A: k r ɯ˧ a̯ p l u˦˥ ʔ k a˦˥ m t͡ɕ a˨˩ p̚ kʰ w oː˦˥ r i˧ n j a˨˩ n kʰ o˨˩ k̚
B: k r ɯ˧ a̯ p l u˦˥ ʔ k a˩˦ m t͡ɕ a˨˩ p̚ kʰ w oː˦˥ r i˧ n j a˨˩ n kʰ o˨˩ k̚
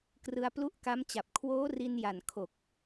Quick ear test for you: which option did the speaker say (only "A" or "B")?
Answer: A